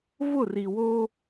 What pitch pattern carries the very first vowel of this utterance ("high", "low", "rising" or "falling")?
falling